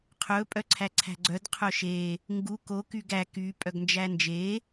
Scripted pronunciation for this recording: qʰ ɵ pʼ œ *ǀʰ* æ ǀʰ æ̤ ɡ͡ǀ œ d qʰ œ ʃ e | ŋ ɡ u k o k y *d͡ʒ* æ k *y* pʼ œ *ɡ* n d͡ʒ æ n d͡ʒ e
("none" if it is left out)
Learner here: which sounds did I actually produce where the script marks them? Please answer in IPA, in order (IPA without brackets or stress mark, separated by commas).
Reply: ǀʰ, ɡ, y, ɡ